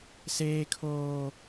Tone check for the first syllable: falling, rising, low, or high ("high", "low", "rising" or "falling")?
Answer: high